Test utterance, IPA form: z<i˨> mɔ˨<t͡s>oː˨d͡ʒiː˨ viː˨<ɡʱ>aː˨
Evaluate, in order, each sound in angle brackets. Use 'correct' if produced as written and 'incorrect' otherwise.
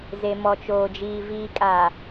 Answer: incorrect: e˨, incorrect: t͡ʃ, incorrect: kʼ

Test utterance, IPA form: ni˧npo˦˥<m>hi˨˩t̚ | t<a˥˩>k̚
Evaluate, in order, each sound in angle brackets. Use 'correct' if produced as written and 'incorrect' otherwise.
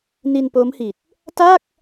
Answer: correct, correct

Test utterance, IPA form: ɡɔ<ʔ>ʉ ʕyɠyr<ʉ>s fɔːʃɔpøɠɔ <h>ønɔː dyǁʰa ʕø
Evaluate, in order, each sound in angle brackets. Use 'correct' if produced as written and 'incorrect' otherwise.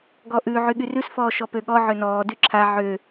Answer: correct, correct, incorrect: ʕ

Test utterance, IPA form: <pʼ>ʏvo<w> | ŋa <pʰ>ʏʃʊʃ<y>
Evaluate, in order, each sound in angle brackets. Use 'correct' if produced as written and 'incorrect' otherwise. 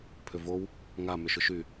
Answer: incorrect: pʰ, correct, incorrect: m, correct

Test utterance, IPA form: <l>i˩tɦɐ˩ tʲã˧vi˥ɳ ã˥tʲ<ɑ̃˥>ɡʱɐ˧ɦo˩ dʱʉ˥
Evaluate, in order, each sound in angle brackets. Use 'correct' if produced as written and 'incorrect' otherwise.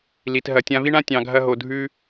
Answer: correct, incorrect: ɑ̃˩

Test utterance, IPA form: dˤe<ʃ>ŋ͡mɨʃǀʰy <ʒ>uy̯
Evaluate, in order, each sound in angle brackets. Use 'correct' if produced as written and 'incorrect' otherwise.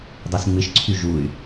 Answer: incorrect: s, correct

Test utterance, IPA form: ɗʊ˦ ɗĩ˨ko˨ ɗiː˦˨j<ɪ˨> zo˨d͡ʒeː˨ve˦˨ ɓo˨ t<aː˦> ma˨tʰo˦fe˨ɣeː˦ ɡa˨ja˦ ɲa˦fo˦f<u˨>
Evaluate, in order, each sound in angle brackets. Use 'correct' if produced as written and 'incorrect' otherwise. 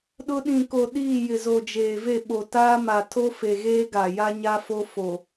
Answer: correct, correct, incorrect: o˨

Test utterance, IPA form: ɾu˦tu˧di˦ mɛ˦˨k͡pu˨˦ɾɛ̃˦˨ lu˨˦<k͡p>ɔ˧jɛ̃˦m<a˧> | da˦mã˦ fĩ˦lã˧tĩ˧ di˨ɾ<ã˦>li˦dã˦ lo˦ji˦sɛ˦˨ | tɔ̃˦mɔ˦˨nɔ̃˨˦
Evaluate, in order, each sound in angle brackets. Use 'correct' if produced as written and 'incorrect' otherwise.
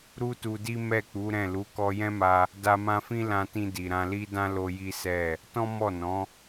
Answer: incorrect: k, correct, incorrect: ã˧

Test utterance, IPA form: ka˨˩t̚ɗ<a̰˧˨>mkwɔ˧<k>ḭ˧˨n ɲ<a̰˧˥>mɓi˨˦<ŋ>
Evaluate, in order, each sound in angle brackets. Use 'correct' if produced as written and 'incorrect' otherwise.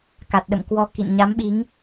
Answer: incorrect: ə̰˧˨, correct, incorrect: a˨˦, correct

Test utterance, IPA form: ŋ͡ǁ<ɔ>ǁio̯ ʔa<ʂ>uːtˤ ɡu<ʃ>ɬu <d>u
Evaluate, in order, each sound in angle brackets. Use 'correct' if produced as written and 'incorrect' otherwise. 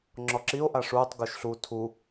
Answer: correct, correct, correct, incorrect: tʰ

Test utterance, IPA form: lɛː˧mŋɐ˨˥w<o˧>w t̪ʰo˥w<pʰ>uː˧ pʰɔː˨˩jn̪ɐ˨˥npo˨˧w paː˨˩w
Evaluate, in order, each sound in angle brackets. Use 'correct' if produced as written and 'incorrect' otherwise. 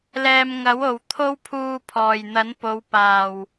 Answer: incorrect: o˨, correct

